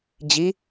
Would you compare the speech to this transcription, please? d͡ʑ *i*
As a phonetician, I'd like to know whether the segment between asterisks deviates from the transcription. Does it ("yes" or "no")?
no